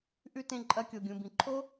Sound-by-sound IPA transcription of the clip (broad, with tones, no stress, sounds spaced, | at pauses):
ʔ ʉ˦˨ t ẽ˦˨ ǃʼ ɐ˧ kʲ o˨ ɡʲ ũ˨ b ĩ˨ ǃʰ o˦